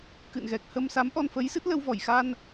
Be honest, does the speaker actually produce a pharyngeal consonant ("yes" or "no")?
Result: no